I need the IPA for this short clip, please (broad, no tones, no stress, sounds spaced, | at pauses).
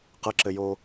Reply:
q ə ǁ ɘ j o